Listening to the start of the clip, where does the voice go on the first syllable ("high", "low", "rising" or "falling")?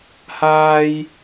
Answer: high